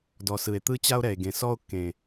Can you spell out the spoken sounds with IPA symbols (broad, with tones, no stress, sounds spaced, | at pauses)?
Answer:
d ɔ˨ s ɯ˨ e̯ t̪ ɯ˦ t͡ɕ a˦ o̯ ɾ ɛ˨ e̯ ɡ ẽ˨ s ɔ˦ o̯ kː ẽ˨